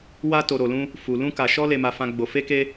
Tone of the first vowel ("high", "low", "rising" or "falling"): high